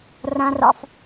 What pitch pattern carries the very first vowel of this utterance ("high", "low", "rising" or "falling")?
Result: high